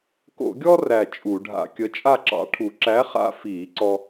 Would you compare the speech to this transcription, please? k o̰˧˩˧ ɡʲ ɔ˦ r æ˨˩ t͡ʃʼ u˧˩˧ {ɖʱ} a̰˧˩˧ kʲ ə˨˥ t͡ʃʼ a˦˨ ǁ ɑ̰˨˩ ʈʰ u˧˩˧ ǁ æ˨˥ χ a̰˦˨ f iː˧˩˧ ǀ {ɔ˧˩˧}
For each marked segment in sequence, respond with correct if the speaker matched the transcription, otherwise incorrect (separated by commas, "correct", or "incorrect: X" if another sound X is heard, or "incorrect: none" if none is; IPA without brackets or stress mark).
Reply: correct, incorrect: ɔ˦